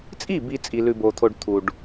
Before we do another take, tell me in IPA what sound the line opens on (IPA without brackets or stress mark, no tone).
t͡sʼ